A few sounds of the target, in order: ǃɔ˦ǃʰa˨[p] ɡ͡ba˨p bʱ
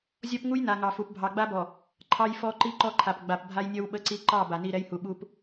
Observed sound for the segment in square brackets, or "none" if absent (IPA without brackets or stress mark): p